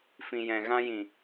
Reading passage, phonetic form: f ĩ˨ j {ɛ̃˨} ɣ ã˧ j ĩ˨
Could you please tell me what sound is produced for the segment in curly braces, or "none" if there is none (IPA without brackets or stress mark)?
ɛ̃˨